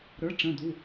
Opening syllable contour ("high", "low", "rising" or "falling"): rising